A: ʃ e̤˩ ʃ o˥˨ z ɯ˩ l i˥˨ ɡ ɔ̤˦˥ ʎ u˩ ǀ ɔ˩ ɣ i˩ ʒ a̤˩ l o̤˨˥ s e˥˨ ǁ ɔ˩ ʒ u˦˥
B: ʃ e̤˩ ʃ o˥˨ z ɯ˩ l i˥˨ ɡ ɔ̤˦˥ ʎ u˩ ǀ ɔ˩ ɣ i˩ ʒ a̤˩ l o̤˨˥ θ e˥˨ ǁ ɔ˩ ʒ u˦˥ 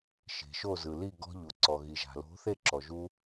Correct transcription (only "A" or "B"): B